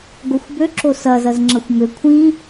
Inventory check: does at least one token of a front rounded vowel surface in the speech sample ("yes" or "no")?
yes